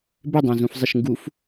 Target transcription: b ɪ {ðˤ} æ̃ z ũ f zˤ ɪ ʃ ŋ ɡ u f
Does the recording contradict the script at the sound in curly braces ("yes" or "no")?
yes